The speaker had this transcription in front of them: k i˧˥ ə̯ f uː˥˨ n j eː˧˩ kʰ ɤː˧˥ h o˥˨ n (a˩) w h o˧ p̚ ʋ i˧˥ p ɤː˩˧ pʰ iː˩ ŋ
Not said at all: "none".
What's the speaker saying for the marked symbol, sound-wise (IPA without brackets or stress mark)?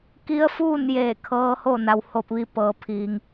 a˩